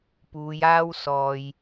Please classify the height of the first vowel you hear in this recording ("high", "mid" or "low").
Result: high